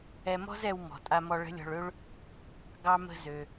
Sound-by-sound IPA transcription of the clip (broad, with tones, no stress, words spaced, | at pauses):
ɛ˧mɔ̤˥zɛ˧w mɔ̤˩tʼa˧mɔ˧ ɭə̤˧˥lʲɔ̤˧ɭø˥ɭ | ɡɑ˧mə̤˧zø˩